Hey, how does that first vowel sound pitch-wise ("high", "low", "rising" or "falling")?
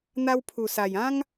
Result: high